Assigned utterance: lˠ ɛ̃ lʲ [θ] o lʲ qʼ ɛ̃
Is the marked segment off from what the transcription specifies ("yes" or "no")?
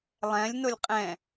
yes